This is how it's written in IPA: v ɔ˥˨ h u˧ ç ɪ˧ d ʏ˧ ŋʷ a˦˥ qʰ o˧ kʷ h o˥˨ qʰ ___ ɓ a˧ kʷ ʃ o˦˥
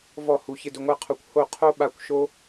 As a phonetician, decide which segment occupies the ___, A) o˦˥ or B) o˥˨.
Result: A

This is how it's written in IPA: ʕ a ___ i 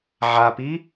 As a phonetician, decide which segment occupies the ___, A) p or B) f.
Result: A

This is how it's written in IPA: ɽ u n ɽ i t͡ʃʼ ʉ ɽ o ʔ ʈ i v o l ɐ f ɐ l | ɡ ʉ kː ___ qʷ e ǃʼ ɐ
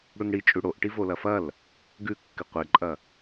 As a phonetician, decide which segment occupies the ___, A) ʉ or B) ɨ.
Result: B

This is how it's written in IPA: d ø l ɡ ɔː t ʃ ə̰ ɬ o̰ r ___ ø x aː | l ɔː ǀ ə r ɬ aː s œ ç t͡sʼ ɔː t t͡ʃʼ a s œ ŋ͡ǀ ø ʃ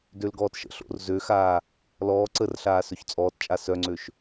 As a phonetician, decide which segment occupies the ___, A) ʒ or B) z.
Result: B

